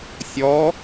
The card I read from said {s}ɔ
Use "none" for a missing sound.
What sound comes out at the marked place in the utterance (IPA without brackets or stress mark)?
sʲ